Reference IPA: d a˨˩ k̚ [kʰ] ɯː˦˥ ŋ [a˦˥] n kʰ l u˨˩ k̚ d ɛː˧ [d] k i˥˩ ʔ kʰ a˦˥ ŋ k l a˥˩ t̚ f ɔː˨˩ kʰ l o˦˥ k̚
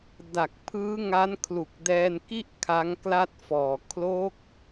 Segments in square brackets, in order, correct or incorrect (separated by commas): incorrect, correct, incorrect